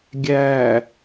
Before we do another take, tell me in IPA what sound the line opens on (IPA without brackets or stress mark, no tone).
ɡʲ